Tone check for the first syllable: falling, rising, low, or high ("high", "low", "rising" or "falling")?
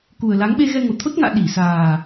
low